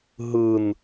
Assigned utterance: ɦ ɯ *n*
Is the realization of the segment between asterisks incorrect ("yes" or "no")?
no